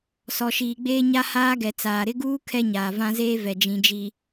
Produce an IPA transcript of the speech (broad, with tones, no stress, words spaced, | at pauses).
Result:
sɔ˨ʃiː˨ɡ͡beː˦ ɲa˦haː˦ɡɛ˨ t͡saː˨ɾɪ˦ɡuː˦ kʰɛ˦ɲaː˨vã˦zeː˦ vɛ˨d͡ʒĩ˨d͡ʒi˨